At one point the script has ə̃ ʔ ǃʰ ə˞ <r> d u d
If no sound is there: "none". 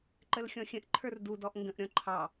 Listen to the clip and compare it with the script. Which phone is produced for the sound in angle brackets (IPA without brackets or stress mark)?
r